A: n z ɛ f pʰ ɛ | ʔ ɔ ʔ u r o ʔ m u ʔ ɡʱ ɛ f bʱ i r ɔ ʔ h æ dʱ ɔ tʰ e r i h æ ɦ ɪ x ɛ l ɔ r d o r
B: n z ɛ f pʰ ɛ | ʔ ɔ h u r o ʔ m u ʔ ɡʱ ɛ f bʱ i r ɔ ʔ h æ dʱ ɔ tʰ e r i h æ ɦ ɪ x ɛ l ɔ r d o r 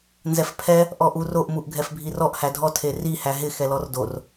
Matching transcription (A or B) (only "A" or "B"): A